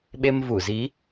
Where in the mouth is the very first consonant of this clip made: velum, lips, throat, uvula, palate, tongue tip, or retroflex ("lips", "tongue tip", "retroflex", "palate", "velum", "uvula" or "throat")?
lips